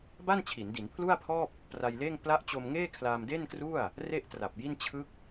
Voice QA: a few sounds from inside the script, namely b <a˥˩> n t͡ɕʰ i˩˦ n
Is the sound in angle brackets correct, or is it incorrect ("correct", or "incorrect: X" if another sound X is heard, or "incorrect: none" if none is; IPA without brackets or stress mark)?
correct